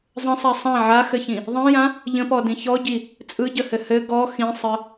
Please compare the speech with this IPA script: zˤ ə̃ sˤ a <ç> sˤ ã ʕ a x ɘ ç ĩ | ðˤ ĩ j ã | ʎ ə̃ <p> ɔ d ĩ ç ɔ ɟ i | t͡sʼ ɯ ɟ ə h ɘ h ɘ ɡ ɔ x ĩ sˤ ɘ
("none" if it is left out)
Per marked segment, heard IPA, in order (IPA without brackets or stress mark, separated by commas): none, p